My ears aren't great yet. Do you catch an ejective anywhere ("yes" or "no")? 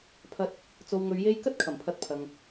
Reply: no